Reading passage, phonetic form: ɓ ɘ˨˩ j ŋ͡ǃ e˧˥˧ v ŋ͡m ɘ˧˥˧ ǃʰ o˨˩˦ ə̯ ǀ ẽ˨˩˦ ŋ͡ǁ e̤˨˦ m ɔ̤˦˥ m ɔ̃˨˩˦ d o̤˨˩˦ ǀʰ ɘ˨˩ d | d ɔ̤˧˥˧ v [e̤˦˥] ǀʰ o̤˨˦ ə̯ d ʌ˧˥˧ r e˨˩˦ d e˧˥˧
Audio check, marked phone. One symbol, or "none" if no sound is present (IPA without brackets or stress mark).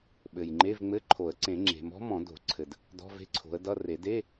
e̤˦˥